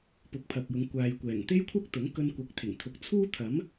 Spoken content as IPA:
pʊ˨˥k̚pʰɐ˨k̚jʊ˨˧ŋ kʷaː˨jkʷɛː˨˩ŋ t̪e˥jkʷʰɐ˥k̚t̪ʊ˨˥ŋ kɵ˧nkʷɐ˨˥k̚t̪ʰɪ˨˩ŋt̪ʰʊ˨˥k̚ t͡sʰuː˥t̪ʰɐ˨˥m

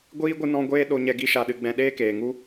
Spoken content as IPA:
ɡʷiː˦ ɡʷɨ˦nɔ̃˦ ɡʷeː˦ ɗo˧ɲɛ˧ ɡi˦ʃa˧ɗɨ˧ ɡ͡bɛ̃˧ɗeː˦keː˨ŋu˦

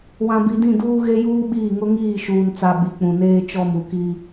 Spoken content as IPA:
wã˨bi˨dĩ˦˨duː˦ ɣe˦juː˦ɓiː˦˨ ŋʊ˦ŋiː˦˨ ʃuː˨nt͡sa˨ ɓi˨k͡pũ˨ neː˦t͡ʃɔ˦˨mu˨ki˦

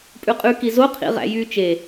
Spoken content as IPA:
pʼʉqʼʉ kizo qʰḭʁæ̰jy t͡ʃe

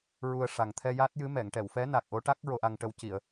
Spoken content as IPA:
ɹu˧ə̯ʂa˨˩ŋ t̪ʰɛ˧ja˦˥t̚jɨ˧˥ mɛ˨˩˨ŋʈɛ˨˩˨wfɛ˧˥ na˨˩k̚ʔo˧˥ ʈa˦˥k̚ ɹo˧ʔa˧ŋʈə˧wci˨˩˨ə̯

